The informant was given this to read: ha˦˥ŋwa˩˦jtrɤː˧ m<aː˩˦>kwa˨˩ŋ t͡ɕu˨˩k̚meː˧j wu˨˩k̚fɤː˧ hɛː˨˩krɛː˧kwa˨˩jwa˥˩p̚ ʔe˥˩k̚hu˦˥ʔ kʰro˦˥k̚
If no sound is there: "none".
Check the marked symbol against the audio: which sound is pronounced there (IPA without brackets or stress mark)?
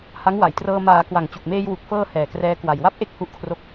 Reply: aː˩˦